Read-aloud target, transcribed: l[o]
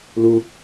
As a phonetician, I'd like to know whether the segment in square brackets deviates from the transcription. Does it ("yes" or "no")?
yes